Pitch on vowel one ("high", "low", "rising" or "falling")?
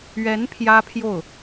rising